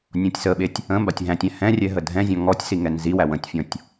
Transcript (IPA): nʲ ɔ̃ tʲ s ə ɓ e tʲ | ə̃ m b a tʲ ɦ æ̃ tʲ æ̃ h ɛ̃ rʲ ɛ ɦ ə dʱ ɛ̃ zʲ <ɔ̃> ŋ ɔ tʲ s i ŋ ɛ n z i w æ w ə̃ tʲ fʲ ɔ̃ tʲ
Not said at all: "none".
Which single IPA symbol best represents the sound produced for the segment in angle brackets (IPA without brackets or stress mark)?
ɔ̃